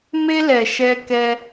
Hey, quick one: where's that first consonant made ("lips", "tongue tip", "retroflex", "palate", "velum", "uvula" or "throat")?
lips